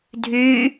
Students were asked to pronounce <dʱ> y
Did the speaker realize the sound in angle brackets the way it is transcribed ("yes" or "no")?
yes